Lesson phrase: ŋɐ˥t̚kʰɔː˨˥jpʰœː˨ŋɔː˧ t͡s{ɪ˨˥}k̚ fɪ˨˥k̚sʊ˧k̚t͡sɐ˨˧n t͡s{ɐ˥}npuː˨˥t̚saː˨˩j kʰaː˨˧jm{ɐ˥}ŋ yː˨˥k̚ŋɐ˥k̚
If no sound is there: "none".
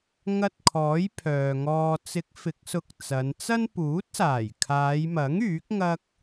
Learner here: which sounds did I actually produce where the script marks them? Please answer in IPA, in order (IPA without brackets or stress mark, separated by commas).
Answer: ɪ˨˥, ɐ˥, ɐ˨˥